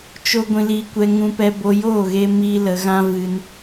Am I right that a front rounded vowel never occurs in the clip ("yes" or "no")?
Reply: yes